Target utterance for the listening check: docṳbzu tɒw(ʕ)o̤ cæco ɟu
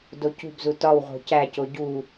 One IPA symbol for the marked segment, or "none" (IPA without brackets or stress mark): ʁ